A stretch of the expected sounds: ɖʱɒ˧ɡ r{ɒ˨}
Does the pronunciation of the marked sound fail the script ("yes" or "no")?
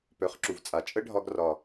no